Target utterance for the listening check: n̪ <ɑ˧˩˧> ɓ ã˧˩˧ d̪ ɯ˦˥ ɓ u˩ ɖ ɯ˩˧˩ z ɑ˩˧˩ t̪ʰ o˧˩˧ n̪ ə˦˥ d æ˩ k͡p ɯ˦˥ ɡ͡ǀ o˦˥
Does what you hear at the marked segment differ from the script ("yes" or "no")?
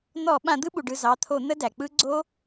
yes